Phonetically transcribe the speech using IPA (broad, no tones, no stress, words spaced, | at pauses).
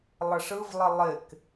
lˠəʂɯvlˠɘ lˠɪk